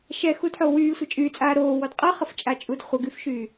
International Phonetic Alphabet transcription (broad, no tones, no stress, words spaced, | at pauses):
ʃɛxudħo wyːsʷə t͡ʃʼyt͡sʼaː ɾoːwɔd qʼʌχəft͡ʃʼat͡ʃʼud χʷəɡyfʃyː